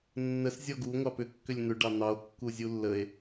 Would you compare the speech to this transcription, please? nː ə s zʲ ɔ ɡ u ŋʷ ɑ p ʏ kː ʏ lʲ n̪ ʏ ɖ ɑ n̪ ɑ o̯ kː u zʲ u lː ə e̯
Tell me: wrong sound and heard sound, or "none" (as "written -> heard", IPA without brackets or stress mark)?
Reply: none